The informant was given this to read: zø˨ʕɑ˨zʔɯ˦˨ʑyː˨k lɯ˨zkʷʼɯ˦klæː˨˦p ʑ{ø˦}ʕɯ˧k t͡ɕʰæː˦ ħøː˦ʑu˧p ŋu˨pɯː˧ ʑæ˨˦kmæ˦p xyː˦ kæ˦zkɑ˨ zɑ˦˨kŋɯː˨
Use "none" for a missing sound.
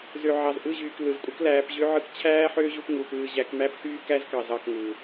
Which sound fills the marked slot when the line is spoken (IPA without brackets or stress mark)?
ø˦